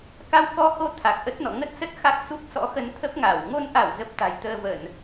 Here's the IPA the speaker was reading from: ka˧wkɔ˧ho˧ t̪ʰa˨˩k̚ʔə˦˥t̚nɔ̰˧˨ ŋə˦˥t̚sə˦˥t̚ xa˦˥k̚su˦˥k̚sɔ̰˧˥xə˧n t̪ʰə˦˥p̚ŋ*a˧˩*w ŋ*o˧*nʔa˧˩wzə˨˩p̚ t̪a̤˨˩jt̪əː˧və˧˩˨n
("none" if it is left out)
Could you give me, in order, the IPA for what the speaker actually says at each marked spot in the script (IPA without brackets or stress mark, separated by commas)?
a˧˩, o˧